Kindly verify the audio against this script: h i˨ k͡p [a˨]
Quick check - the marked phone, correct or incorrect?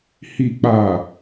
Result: correct